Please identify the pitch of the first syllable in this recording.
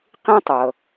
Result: high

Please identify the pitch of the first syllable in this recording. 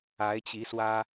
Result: rising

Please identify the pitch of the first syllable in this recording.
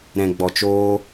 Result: low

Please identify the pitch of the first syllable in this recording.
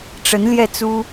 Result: rising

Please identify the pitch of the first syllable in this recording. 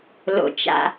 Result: low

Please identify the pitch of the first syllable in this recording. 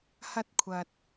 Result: high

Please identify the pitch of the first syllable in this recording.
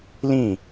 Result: falling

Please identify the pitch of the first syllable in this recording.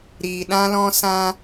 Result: low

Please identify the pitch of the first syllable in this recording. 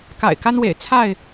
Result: low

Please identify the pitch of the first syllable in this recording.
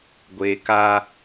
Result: high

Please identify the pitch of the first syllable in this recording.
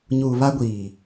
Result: low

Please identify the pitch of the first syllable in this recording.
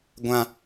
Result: high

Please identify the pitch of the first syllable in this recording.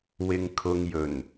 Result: low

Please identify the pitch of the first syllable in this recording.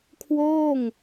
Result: falling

